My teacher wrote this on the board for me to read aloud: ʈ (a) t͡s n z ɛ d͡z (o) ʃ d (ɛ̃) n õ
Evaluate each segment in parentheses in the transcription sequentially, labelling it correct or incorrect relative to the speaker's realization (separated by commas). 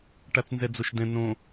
correct, correct, correct